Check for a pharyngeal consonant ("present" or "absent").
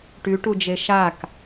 absent